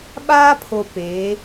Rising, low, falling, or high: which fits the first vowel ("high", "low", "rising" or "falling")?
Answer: high